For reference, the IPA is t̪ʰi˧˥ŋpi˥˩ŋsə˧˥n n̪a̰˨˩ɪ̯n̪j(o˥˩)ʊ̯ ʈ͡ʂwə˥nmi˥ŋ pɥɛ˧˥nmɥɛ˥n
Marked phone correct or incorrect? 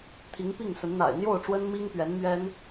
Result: correct